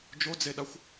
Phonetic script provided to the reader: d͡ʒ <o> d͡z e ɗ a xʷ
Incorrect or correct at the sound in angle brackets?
correct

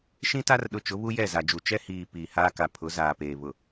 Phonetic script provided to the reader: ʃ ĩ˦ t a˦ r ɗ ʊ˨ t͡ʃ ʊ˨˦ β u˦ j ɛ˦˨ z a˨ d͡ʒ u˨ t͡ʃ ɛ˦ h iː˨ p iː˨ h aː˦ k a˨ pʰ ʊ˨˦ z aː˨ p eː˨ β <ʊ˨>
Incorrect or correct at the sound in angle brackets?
correct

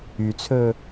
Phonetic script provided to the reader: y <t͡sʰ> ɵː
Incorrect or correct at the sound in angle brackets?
correct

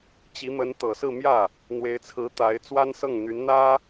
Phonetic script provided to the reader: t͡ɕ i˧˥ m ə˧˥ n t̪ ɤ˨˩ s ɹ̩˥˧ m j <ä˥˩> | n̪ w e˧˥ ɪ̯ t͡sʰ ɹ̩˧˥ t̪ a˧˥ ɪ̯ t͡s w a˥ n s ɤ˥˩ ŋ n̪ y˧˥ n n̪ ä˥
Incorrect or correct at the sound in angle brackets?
correct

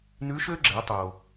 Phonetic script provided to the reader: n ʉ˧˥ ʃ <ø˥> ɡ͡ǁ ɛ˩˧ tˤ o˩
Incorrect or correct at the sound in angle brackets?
correct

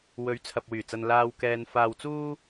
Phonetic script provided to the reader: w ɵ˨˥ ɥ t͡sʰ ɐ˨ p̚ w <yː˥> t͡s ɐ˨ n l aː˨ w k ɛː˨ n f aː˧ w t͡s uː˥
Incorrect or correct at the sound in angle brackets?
incorrect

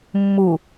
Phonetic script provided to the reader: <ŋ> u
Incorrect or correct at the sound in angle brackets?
incorrect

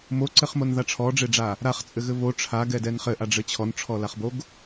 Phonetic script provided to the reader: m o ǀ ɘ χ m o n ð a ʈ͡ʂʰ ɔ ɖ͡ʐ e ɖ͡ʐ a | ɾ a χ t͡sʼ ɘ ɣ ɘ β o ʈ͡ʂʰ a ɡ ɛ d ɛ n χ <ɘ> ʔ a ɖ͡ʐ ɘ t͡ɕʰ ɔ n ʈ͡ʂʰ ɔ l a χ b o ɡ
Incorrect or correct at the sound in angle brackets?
correct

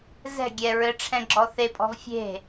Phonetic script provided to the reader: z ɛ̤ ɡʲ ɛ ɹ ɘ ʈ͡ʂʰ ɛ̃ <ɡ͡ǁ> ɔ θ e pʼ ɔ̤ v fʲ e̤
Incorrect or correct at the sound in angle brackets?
correct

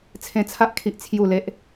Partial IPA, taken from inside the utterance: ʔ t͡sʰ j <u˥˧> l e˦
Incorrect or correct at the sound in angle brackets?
correct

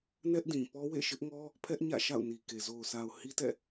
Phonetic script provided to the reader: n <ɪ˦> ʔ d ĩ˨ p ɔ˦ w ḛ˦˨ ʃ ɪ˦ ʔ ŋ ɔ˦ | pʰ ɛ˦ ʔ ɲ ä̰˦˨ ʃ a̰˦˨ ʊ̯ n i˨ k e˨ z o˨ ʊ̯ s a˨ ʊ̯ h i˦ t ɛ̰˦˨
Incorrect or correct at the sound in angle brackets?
incorrect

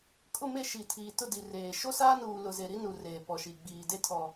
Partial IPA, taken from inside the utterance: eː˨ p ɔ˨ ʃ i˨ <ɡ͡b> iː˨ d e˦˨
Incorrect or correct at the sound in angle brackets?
correct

